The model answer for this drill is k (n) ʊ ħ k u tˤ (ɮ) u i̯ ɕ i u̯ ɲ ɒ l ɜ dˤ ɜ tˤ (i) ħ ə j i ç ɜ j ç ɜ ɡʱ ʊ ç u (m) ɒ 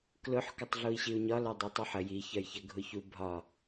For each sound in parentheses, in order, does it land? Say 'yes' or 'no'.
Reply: no, yes, yes, no

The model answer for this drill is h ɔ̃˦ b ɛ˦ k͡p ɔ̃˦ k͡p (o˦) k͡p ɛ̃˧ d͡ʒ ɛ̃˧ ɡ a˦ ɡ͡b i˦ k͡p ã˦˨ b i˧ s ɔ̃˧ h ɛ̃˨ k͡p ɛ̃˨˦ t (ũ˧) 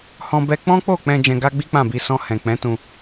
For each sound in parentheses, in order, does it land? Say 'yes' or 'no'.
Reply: no, yes

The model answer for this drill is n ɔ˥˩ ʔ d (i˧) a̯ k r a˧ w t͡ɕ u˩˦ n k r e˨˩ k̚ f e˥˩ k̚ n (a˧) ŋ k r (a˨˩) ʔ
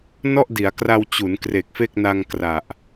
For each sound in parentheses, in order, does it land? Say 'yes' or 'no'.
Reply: no, yes, yes

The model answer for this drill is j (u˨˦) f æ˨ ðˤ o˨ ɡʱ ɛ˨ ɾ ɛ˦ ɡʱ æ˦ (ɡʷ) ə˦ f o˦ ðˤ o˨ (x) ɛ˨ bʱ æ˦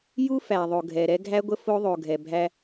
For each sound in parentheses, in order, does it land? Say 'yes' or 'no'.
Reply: no, yes, no

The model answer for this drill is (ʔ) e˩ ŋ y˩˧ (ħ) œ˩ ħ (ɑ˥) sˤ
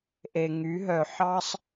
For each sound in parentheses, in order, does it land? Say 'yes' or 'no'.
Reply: yes, no, no

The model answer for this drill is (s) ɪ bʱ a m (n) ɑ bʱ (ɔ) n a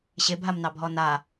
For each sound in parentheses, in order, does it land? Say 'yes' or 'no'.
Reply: no, yes, yes

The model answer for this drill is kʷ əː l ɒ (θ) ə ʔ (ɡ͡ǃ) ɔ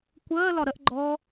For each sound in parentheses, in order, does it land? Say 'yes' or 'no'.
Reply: no, yes

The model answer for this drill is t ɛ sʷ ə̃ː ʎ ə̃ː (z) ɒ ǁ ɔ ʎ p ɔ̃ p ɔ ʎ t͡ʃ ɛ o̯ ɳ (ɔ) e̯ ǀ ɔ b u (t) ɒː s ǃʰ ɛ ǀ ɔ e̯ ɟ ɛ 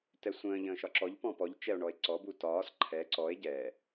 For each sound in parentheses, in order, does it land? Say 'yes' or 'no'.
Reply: no, yes, yes

